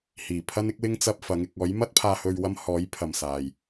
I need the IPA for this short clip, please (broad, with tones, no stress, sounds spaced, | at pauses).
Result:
h iː˨˩ pʰ ɐ˥ n ɪ˥ k̚ w ɪ˥ ŋ t͡s ɐ˧ p̚ f ɐ˨˥ ŋ ɪ˧ k̚ ɔː˨˥ j m ɐ˥ t̚ pʰ aː˧ h ɵ˧ ɥ w ɐ˥ m h ɔː˨˥ j pʰ ɐ˨ m s aː˨ j